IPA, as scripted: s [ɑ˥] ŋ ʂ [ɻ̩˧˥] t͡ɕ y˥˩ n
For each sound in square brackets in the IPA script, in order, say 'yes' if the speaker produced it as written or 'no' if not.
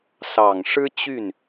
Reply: no, no

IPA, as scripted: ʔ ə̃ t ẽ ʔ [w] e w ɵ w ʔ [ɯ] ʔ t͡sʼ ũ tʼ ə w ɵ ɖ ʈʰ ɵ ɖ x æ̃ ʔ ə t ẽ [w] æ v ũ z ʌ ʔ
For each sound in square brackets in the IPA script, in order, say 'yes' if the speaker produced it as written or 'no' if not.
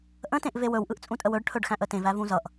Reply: no, yes, no

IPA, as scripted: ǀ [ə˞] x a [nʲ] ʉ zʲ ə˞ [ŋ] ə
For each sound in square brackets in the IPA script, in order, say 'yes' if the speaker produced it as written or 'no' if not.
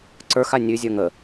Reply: yes, yes, yes

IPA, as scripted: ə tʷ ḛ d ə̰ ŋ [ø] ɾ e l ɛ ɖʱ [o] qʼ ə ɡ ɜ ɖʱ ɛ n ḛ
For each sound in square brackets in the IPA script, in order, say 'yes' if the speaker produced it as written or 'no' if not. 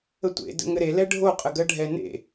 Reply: no, yes

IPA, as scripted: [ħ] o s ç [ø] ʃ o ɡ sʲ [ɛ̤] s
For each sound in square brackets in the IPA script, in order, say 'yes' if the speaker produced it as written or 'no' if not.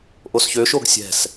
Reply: no, yes, yes

